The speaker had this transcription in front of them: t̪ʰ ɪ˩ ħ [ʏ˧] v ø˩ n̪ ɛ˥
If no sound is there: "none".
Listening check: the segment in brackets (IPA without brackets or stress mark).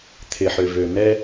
ʏ˩